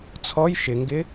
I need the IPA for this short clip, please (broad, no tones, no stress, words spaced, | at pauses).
t͡sʰɔj ʃɪŋɡɪ